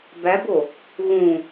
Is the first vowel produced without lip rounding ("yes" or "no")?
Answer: yes